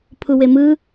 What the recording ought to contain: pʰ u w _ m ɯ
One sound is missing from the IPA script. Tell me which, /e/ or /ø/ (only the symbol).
e